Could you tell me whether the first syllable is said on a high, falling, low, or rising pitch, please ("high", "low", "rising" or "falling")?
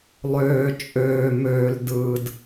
low